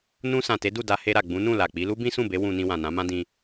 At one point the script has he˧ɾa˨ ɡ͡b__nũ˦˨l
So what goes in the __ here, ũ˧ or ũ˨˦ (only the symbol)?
ũ˨˦